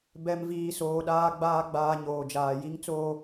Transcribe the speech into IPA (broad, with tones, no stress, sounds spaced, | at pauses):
b ɛ˨ m v iː˨ s oː˨ ɗ aː˨ ɡ͡b aː˨ ɡ͡b aː˨ ɲ oː˨ d͡ʒ aː˨ j i˦ ŋ t͡s oː˦